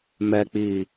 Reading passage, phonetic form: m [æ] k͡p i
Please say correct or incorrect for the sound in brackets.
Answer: incorrect